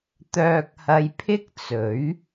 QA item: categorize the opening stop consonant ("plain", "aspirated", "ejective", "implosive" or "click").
plain